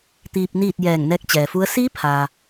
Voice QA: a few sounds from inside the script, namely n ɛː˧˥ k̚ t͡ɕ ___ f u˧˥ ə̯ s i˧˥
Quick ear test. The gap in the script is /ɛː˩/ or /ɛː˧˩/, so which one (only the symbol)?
ɛː˩